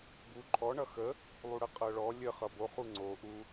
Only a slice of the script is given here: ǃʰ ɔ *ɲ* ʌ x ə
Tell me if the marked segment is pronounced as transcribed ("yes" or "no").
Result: no